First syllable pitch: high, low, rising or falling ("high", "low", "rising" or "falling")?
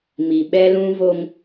low